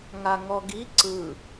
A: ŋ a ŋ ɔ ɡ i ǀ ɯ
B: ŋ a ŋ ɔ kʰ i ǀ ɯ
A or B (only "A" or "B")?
A